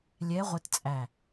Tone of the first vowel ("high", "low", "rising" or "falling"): rising